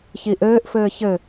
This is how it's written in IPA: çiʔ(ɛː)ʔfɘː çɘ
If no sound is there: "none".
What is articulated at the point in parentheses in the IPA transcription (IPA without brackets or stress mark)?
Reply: ɘː